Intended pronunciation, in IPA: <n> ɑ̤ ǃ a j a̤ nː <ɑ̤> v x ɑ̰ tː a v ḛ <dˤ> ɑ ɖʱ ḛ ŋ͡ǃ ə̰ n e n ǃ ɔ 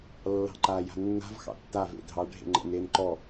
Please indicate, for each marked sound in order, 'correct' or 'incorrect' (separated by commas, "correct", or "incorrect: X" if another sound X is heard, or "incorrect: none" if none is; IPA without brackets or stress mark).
incorrect: lː, incorrect: a̤, incorrect: dʱ